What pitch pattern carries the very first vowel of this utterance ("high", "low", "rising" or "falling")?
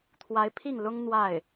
rising